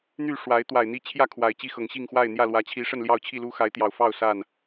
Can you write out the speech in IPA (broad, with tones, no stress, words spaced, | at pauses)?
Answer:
n̪y˥˨ ʂwa˨˦ɪ̯ t̪wa˨˩ɪ̯n̪i˦t͡ɕʰjä˥˨kʰwa˨˩ɪ̯ t͡ɕi˥˨xɤ˨˩ŋ ɕi˥˨ŋxwa˥˨ɪ̯n̪jä˥˨lwä˨˦ t͡ɕʰi˨˦ ʂə˥˨nljɑ˥˨ʊ̯t͡ɕʰi˥˨lu˦ xa˨˦ɪ̯t̪jɑ˨˩ʊ̯fɑ˥˨ʊ̯ sa˥˨n